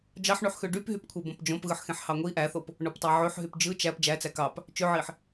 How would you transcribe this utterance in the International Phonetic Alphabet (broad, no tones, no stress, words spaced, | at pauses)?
d͡ʒɑħɳyħxø ɖypɦypkʷʰe bõpd͡ʒõp ɣɯħxẽħhɑŋʷi ʔæθop | ɳoptˤæʕøħɦyp d͡ʒɯ t͡ʃæp d͡ʒæt͡sæ kɑp | t͡ʃøʕiħ